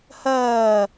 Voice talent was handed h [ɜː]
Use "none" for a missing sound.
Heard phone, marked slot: ɜː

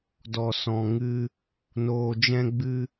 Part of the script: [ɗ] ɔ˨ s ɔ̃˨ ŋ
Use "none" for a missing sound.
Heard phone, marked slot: d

